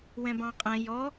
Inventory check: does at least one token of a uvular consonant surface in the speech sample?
yes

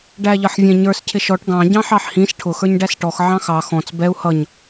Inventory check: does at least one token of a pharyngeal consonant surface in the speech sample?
yes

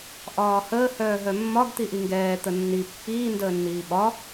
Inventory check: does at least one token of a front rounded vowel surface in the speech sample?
yes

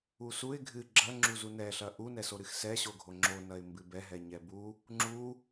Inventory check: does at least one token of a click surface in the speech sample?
yes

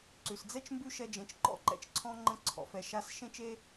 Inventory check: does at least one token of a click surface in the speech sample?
yes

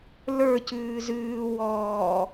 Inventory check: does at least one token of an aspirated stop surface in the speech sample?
no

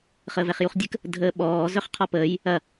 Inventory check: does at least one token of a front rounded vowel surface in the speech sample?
yes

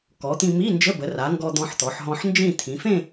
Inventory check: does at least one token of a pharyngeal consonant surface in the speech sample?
yes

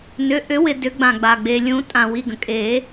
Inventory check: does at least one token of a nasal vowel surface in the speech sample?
yes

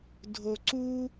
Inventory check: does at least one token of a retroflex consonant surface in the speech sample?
no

